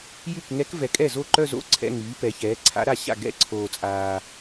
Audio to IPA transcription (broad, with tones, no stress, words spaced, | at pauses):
jy˥˩k ŋɛ˧˥kvɛ˨kʼɛ˥˩zo˥˩ ǃœ˥˧zo̰˧˥˧ ǀʰɛ̰˧˥˧ŋyː˩˥ pɛ˩˥çɛː˩˥ ǀʰa̰˧˥ɾa˥˩ɕa̰˥˩ ɡɛ̰˥˩ǀʰoː˨ t͡sʼaː˨